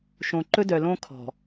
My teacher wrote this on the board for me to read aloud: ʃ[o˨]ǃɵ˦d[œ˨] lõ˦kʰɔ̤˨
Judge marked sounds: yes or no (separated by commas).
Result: no, yes